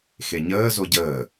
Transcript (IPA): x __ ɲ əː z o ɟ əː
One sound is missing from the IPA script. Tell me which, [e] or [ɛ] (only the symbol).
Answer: e